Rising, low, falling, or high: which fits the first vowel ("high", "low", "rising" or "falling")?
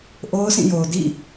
high